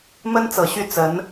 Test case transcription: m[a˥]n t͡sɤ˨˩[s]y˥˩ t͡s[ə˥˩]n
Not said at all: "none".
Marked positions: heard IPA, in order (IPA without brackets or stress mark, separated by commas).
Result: ə˥, ɕ, ə˧˥